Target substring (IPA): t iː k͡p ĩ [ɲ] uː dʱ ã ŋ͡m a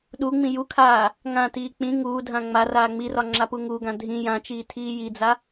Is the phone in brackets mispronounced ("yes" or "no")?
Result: yes